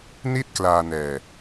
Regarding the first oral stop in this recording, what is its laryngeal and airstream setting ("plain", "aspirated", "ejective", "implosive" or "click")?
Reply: plain